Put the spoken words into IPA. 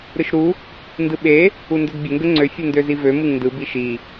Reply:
ɾɯʃɾu | ndɯɓe | undødbʲə ŋɡəŋ͡ǀø fʲɯndøzivø mɯŋndɯ biʃi

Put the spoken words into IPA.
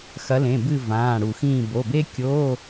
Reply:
xɐ˨˦lẽ˩˧˩bɨ˦˨ vãː˩˧˩ɽu˧˩˧xĩː˦˨ bo˩˧˩be˥kʲo˧˥˧

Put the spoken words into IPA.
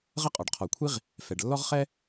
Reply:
ʁə˥qʼɔ˩ɖqʰɔ˩kʷʰi˥ʁ | fɛ˩ɖlːɔ˥ʁχɛ˥

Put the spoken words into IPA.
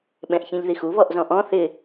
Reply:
ɓɛ̃ʔçĩʎðixu βɔʔzɔ̃ʔɔ̃ θɪ

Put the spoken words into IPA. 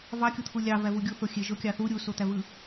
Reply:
vɑkʲot̪ʰu lʲɑvævu ɡʲuθoxʲe ʒokʲɑθu ɾʲusot̪ævɯ

